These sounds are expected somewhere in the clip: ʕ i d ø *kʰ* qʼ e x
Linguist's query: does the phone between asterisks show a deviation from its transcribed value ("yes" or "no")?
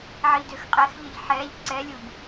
yes